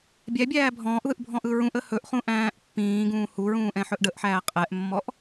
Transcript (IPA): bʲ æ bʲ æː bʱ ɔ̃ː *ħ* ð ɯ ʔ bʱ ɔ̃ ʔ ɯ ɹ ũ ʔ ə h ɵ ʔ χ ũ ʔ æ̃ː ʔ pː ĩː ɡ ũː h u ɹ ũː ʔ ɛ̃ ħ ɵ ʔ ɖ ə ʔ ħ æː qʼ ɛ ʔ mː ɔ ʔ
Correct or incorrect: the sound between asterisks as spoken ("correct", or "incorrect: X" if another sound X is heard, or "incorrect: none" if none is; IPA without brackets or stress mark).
incorrect: ʔ